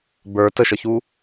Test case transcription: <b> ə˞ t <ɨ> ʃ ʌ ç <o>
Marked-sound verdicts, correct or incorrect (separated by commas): correct, incorrect, incorrect